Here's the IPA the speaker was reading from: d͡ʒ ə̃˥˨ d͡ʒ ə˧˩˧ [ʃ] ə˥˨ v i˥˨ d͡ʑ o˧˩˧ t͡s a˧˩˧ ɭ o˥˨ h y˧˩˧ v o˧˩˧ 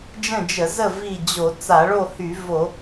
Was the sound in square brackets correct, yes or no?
no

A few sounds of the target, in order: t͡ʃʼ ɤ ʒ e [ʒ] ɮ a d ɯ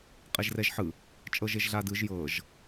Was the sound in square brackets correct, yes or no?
yes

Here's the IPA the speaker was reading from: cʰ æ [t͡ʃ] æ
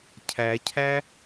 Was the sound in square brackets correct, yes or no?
no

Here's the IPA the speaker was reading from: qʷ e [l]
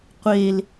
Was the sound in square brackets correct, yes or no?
yes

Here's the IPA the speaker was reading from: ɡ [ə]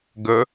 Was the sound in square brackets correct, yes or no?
yes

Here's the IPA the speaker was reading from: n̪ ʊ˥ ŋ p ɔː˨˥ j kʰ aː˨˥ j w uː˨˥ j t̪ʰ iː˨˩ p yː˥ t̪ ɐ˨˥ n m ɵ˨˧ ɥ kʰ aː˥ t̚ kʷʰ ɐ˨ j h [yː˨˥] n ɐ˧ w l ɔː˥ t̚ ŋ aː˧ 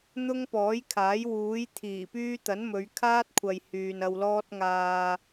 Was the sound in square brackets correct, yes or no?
no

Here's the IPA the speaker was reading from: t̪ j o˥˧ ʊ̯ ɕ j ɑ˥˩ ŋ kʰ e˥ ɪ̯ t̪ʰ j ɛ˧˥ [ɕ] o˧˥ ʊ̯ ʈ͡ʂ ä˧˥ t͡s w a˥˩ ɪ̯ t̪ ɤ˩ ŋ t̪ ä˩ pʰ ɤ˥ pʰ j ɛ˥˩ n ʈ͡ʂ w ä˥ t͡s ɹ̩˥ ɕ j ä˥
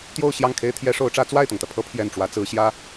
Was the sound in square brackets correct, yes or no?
no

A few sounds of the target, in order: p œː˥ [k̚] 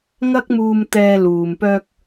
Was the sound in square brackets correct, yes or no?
yes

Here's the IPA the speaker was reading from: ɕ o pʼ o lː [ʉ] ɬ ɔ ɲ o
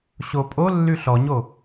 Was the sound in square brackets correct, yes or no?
yes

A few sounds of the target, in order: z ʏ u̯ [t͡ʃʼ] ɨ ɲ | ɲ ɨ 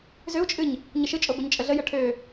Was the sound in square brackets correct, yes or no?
yes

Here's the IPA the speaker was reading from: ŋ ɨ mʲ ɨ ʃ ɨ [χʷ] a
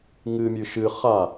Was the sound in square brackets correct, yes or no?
no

